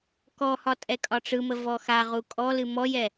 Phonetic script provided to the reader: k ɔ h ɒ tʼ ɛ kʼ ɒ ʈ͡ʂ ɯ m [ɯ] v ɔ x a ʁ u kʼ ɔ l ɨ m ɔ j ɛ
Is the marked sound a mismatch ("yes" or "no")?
yes